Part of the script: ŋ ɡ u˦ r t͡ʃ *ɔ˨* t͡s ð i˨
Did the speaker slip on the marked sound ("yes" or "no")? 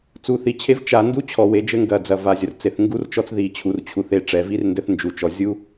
yes